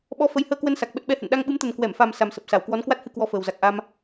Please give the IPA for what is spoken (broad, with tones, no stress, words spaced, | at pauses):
ɓɔ˧ fə˨˦jhəː˧kwə˧nsa˨˩k̚ ɓə˦˥t̚ɓɛ˨˦hə̰˧˨n ɗa˧ŋɓɨ˨˦mt̪ə˨˩n kwɛ˧˩mfa˨˩m sa˨˩msə˨˩p̚sa˧˩w kwɔ˨˦nkwa˦˥t̚hɨ˧ kwɔ˧fəː˨˩w za˨˩k̚ʔa˧m